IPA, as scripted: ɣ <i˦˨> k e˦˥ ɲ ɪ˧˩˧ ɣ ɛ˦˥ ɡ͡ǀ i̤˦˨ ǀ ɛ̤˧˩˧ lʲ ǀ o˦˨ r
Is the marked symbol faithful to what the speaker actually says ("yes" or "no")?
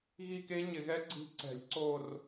yes